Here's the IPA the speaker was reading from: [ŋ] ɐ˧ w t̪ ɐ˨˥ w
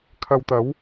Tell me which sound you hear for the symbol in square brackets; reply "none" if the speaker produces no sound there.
kʰ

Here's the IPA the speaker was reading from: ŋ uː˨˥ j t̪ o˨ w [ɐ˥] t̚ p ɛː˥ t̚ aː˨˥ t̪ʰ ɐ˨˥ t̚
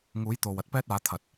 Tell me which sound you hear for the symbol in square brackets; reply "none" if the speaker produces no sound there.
ɐ˥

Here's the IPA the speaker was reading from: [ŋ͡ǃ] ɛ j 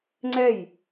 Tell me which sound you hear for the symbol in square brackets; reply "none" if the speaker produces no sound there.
ŋ͡ǀ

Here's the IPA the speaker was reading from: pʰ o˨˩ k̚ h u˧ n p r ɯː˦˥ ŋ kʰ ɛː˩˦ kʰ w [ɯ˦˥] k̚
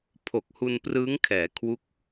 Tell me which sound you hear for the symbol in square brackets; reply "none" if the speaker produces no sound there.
u˦˥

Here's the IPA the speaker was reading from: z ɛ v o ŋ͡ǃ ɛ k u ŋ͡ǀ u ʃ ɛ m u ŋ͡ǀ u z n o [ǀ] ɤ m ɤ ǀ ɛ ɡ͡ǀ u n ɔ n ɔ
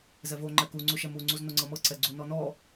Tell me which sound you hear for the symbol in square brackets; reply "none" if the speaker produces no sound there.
ŋ͡ǀ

